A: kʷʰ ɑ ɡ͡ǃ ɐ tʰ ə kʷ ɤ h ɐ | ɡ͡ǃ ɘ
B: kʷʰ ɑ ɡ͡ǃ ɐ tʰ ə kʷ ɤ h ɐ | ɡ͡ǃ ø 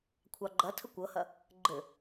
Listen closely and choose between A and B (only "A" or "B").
A